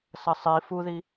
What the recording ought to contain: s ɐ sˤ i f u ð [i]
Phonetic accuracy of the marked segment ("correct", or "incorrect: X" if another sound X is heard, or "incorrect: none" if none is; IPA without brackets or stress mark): correct